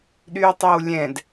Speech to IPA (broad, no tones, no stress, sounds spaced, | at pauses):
ɗ y ʊ̯ tˤ ɛ w lʲ ɛ̃ d